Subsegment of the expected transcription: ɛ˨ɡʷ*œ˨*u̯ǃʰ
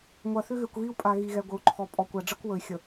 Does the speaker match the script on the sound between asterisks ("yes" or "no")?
no